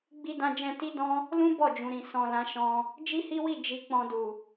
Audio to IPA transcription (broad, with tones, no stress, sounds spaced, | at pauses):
ɡ͡b i˧ d ã˧ d͡ʒ ɛ̃˧ t i˦ d ɔ̃˦ | l ũ˦ b ɔ˦˨ d͡ʒ ũ˨ ɾ ĩ˨ s ɔ̃˨ l ã˨˦ ʃ ɔ̃˧ | d͡ʒ i˦ h i˦ w i˦˨ d͡ʒ i˧ k͡p ɔ̃˧ d u˨